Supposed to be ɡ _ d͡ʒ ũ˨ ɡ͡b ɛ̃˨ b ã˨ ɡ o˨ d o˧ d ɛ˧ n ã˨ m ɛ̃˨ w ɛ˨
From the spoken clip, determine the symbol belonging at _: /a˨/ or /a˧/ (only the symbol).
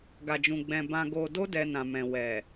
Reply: a˨